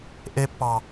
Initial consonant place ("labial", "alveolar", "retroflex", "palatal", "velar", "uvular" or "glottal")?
glottal